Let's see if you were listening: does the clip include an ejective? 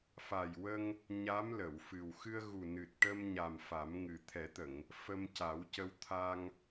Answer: no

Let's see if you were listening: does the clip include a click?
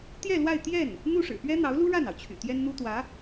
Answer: no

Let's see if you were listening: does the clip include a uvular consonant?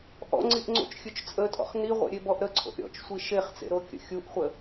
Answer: yes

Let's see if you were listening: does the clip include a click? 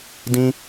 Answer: no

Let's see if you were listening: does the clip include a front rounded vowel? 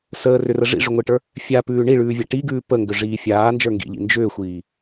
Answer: yes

